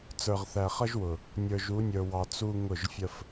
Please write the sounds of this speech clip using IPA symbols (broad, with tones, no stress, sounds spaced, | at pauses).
t͡s ə˞˨ ʁ θ æ˨ χ ʌ˦ ʒ w ʊ˨ | nʲ ə˞˨ ʒ u˨˦ nʲ ə˞˨ w ɑ˨ t͡s u˦ ŋ ʊ˦˨ ʒ fʲ ə˦ f